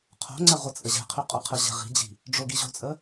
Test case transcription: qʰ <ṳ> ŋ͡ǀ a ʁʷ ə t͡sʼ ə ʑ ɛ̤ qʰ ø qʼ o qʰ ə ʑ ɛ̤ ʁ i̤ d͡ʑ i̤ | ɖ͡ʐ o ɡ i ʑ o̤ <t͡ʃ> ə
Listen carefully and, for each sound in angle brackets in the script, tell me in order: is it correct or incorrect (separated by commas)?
incorrect, incorrect